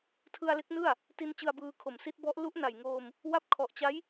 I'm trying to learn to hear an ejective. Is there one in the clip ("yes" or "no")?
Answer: no